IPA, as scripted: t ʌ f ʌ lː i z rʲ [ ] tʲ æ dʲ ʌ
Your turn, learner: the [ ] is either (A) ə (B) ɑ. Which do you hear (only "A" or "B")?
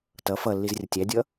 A